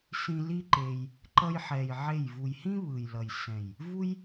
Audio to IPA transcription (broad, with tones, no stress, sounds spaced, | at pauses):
s ĩ˧ l i˦ ǃ e˧ j | ǃ ʌ˧ j ħ ɛ˨ j ʕ e˦˨ j v u˨ j h ĩ˦ β ɯ˨ j l ʌ˨ j s ɛ̃˨ j | v u˦ j